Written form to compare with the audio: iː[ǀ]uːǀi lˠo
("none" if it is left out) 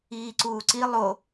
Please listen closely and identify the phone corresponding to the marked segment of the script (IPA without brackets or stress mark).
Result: ǀ